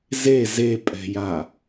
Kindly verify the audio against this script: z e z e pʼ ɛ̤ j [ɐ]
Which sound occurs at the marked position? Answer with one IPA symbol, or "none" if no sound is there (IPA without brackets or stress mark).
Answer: a